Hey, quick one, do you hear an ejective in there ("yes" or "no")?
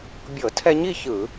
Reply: no